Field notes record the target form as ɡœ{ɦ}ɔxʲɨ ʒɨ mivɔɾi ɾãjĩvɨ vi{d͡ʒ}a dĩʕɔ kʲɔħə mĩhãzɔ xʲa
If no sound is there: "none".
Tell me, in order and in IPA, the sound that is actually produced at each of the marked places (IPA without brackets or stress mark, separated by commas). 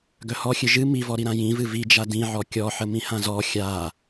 h, d͡ʒ